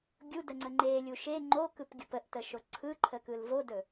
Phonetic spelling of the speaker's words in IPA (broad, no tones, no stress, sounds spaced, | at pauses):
ɡʲ u d ə ŋ͡ǀ ə ŋ͡ǃ e lʲ u ʃ e ŋ͡ǃ o k ɯ p ɡʲ u p ə ʔ t ə ʃ o ǀʰ ɯ ǃʰ ə k ɯ l v o d ɵ